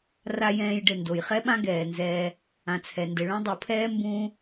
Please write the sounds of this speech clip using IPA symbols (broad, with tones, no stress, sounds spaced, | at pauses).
r a˥ j ɛ̃ː˦ j ɖ ɘ˨ n d o˩ j χ ɛ˥ ɓ ã˥ ɡ ɛː˩ n z ɛː˨ | ã˨ t͡sʰ ɛ˩ n d ɘ˨ ɭ õ˥ dˤ o˨ pʰ ɛː˥ m b ũː˥